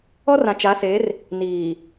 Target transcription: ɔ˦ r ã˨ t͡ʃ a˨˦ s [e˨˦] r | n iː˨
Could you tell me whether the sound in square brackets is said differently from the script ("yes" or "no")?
no